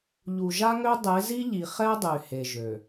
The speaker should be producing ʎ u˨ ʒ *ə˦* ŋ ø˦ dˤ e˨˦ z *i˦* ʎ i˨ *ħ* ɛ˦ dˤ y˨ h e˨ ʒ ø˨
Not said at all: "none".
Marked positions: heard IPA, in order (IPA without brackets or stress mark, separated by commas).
a˦, i˦, χ